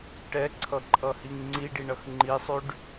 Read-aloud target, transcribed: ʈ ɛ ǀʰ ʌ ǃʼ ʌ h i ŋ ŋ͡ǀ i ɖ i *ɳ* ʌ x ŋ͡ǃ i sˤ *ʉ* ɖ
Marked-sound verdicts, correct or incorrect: correct, correct

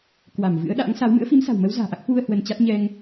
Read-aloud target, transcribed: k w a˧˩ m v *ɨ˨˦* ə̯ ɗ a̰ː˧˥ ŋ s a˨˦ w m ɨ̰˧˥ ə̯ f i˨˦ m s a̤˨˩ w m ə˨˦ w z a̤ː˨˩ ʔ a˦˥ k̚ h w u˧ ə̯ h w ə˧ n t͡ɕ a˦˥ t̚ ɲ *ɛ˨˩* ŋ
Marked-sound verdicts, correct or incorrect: incorrect, incorrect

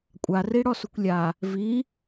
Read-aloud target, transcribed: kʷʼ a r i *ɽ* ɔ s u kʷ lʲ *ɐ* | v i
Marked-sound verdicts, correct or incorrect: correct, incorrect

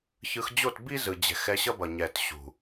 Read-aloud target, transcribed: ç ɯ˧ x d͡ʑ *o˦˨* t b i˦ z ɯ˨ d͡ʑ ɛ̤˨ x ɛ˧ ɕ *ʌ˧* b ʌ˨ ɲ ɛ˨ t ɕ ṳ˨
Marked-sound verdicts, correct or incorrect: correct, incorrect

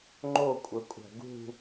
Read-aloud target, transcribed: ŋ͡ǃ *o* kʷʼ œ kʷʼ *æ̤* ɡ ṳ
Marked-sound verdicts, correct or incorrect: correct, correct

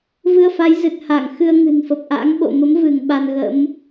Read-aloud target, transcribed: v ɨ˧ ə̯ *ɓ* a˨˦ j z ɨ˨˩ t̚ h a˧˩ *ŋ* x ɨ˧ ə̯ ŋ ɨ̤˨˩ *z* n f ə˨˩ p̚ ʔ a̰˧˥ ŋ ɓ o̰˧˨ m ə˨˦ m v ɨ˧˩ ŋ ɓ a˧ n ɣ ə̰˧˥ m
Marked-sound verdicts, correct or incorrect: incorrect, correct, incorrect

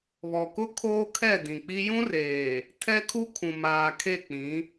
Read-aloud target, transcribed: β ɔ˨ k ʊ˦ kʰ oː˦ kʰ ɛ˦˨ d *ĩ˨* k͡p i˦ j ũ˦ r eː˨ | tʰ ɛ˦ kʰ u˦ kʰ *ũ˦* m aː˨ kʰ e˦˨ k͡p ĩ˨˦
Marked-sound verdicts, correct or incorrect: correct, incorrect

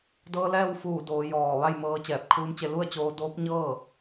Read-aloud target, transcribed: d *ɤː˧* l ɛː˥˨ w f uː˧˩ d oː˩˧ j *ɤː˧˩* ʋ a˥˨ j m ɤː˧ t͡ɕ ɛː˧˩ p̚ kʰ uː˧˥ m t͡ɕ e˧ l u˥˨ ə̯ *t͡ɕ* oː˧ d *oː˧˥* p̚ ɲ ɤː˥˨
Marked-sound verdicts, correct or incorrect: correct, incorrect, correct, correct

